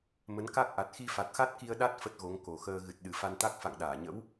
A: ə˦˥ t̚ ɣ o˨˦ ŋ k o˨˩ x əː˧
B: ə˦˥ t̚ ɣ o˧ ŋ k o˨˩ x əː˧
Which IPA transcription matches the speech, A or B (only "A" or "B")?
A